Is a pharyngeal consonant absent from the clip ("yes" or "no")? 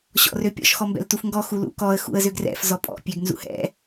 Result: yes